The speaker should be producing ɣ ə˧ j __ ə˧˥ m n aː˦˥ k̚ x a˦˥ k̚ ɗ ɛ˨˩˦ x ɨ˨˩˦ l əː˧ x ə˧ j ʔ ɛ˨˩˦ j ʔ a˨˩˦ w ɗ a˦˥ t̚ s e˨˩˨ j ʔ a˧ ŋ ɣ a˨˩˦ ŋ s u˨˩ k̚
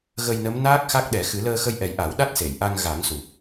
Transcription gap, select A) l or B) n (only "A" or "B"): B